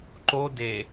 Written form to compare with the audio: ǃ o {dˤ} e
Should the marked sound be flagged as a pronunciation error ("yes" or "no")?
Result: yes